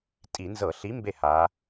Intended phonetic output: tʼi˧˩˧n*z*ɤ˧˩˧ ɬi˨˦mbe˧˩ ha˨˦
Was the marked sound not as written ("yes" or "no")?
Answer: no